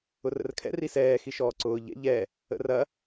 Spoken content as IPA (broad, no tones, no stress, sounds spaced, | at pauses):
ʊ r ə̰ r kʰ ɛ̰ r i s ɛː x i ʃ ɔː ǀ ʊː ʎ ɛ̰ ʎ ɛ | ə̰ r ɐ